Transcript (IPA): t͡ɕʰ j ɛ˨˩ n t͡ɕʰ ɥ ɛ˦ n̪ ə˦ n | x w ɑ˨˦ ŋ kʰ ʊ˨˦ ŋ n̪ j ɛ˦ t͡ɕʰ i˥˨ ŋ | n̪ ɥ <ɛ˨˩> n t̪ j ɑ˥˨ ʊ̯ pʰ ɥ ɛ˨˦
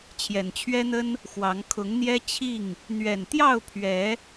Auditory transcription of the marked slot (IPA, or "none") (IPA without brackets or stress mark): ɛ˨˩